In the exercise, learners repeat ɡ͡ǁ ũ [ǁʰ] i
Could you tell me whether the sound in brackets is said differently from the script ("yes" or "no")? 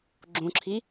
no